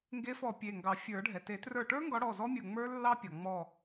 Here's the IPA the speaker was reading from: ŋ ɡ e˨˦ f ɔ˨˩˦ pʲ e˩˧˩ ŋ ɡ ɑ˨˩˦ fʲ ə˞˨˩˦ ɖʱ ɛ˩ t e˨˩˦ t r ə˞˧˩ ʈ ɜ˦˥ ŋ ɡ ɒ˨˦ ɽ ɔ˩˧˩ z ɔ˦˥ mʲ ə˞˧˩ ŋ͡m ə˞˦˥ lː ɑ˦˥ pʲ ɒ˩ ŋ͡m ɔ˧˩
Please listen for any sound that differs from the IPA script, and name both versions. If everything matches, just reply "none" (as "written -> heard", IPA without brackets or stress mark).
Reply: ɜ˦˥ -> ə˞˦˥